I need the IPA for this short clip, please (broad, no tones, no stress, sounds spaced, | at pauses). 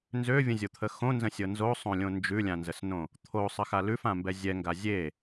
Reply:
n z ø vʲ ə̃ zʲ o t̪ʰ ə x õ n z ə̃ sʲ ɤ n z o sˤ õ lʲ õ n d͡ʒ ʉ lʲ ã n z ə s n õ | t̪ʰ o sˤ ə x a l ʉ f ã m b ɛ zʲ ɛ ŋ ɡ a zʲ e